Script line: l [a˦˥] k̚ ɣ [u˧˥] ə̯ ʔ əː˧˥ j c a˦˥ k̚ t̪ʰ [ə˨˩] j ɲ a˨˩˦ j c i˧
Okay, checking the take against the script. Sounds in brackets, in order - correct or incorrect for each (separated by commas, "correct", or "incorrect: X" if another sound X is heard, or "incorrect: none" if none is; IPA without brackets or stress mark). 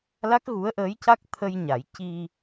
correct, correct, incorrect: ə˧